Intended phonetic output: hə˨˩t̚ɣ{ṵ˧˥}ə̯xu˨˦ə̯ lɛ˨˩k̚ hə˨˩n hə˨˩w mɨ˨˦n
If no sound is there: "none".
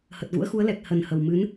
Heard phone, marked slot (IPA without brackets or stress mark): ṵ˧˥